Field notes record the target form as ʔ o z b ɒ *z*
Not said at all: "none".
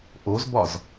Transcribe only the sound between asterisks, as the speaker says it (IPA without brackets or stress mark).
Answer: z